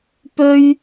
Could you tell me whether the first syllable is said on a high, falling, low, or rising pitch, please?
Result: high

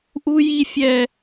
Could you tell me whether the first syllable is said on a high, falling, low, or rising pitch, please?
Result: high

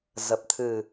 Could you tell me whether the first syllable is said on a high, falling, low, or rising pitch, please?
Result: low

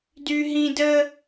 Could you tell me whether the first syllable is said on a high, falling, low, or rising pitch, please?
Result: high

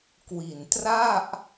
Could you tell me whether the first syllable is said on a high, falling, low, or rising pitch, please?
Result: low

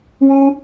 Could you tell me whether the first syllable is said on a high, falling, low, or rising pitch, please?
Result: high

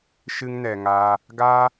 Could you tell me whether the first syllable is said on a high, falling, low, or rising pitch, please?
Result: high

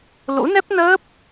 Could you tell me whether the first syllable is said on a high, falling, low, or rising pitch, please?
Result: rising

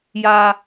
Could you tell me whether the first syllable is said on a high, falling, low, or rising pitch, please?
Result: low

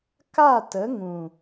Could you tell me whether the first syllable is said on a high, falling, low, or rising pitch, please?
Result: falling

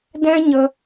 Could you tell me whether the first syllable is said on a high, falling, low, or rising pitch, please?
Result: high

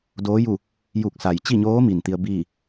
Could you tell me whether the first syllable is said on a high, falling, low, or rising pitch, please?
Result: rising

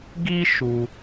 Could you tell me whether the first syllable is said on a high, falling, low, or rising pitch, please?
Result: high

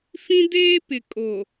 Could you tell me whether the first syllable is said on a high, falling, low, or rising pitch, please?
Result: high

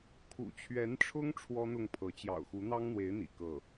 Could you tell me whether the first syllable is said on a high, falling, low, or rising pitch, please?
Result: low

